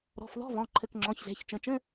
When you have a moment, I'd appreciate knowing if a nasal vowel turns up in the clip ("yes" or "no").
yes